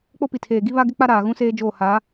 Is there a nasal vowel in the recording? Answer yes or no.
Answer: yes